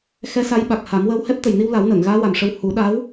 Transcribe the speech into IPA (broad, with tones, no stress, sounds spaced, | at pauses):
x ɛ˧˥ s a˧˥ j ɓ a˨˩ k̚ h a˨˩˦ m w əː˧ w h ɛ˦˥ p̚ t̪ ə˨˩ j n i˧ w l a˨˩˦ w n əː˨˩˨ ŋ ɣ aː˧˥ w a˨˩ m ʂ ə˧ w h u˨˩˦ ɗ a˧˥ w